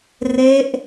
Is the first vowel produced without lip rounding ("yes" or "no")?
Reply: yes